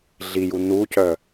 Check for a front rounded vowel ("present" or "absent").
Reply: present